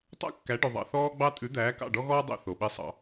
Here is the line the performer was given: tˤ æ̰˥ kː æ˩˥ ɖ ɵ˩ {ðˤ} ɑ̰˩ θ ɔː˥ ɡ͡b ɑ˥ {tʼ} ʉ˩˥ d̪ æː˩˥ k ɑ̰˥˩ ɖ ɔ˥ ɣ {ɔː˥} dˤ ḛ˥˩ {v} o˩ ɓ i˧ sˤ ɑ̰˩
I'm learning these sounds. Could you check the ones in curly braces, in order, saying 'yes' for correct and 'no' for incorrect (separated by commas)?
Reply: yes, yes, yes, no